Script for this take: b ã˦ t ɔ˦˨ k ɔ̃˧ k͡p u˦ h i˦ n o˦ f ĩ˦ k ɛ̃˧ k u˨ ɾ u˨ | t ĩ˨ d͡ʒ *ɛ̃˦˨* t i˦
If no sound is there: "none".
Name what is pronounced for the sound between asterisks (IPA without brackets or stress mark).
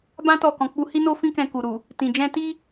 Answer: ɛ̃˧